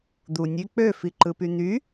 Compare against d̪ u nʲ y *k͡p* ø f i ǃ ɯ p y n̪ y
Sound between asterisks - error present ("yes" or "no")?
no